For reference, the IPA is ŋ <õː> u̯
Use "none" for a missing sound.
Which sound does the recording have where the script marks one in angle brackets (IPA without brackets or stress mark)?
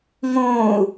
õː